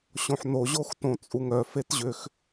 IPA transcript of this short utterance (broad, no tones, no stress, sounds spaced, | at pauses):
ɕ õ ħ n o ʑ o x t õ t͡sʼ u ŋ œ f e t ʑ ʏ x